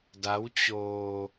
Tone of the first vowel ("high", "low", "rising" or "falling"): rising